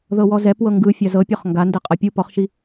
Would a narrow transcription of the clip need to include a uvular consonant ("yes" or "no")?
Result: yes